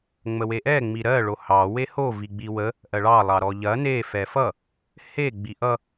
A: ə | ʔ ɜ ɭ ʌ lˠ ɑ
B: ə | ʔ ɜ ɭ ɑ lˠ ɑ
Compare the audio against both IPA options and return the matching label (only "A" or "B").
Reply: B